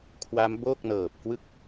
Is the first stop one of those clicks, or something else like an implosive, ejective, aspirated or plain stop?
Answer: aspirated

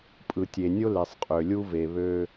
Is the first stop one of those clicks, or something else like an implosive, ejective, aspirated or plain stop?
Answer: ejective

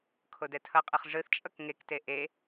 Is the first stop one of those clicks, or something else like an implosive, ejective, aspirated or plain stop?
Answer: aspirated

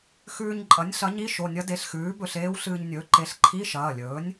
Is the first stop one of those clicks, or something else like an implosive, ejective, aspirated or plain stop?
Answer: click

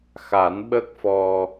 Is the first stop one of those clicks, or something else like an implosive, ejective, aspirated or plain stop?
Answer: implosive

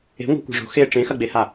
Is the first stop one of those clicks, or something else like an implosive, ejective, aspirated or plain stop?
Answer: plain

